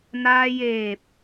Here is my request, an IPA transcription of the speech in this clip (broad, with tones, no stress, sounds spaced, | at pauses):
n aː˧ j eː˧˩ p̚